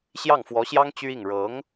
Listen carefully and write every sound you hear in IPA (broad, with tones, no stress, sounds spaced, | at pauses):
ɕ j ɑ˥˩ ŋ f w ɔ˧˥ ɕ j ɑ˥ ŋ t͡ɕ y˥ i˥˩ ŋ ɻ ɤ˧˥ ŋ